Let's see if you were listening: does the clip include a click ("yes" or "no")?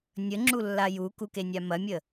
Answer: yes